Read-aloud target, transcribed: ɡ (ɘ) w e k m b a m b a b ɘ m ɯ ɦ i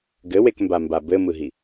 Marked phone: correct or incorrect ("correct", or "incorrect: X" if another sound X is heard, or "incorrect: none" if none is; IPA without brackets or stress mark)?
correct